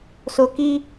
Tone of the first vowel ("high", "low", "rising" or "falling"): low